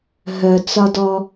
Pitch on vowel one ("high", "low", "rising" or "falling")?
low